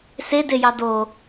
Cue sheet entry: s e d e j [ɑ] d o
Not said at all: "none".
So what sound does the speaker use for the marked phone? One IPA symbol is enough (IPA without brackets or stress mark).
ɑ